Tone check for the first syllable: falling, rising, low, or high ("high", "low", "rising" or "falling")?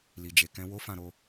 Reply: low